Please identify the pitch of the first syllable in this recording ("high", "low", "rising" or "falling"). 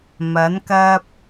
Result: rising